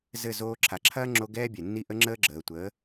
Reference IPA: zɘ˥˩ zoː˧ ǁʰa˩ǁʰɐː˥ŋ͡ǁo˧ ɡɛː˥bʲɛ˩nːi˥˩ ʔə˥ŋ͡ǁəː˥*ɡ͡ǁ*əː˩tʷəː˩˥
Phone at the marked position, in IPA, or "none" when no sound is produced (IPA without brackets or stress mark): ɡ͡ǁ